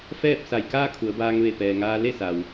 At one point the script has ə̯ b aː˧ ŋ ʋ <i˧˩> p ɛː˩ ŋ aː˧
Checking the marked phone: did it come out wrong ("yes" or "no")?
yes